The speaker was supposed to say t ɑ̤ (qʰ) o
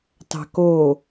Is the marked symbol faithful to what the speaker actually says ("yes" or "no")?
no